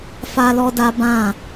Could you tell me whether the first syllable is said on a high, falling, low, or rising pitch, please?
high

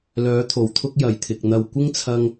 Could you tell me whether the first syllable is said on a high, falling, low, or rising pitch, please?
rising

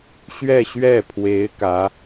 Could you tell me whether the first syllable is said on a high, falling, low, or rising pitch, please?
falling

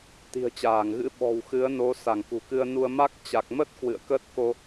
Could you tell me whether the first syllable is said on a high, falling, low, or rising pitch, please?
low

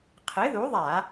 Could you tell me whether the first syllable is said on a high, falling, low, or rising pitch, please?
rising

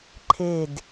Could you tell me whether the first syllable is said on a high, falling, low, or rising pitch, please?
falling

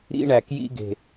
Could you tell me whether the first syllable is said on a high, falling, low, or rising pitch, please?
high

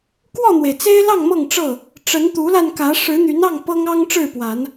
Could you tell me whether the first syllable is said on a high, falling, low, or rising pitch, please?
falling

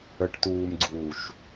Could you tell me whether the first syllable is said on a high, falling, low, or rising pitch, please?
low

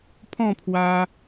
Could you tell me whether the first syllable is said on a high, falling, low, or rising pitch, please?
falling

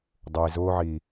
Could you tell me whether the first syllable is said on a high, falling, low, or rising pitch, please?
low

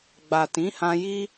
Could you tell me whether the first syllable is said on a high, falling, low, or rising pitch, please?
low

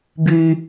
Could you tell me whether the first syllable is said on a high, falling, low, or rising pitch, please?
low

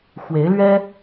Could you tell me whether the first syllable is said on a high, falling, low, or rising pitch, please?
rising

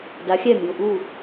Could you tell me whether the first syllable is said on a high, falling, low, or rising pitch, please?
rising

